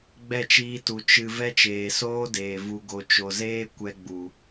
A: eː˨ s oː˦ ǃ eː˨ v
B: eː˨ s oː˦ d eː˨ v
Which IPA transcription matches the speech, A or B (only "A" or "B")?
B